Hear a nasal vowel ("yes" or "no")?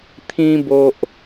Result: yes